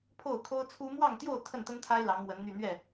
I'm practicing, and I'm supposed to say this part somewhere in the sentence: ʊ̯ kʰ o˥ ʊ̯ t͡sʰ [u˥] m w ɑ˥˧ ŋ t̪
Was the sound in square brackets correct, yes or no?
yes